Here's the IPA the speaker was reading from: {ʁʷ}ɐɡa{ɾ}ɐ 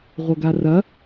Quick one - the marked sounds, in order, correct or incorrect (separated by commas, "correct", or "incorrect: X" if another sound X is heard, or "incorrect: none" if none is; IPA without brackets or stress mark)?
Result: correct, incorrect: r